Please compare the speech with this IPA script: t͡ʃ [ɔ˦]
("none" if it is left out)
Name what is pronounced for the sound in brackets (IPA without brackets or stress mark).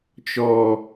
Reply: ɔ˦